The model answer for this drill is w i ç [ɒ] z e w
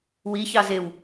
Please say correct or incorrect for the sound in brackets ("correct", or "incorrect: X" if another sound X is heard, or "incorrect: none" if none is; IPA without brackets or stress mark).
incorrect: ɑ